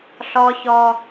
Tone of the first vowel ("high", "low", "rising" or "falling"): high